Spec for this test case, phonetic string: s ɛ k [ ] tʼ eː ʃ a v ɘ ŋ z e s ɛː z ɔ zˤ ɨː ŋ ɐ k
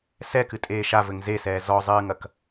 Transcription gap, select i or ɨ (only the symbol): ɨ